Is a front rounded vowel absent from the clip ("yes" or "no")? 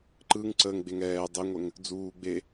yes